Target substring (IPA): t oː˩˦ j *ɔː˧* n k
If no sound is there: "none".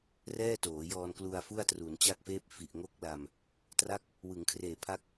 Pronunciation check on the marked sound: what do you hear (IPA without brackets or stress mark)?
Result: ɔː˧